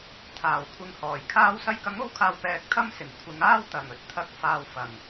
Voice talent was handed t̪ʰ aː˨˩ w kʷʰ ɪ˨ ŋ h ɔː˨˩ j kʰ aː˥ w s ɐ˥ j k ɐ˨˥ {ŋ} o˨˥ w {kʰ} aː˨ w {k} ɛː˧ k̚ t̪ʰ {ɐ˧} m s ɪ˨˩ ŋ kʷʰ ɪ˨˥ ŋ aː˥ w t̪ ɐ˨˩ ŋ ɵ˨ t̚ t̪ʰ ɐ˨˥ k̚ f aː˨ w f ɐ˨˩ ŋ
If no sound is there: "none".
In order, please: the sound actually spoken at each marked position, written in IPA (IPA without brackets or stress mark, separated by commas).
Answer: ŋ, kʰ, p, ɐ˥